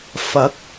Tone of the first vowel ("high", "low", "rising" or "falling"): rising